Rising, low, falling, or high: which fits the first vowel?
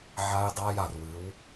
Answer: high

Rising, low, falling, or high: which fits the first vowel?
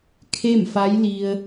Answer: falling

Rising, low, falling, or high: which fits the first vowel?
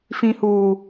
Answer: low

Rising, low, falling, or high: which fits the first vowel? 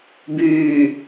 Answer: low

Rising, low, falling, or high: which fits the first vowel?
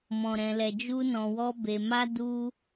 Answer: low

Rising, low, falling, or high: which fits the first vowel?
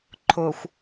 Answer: low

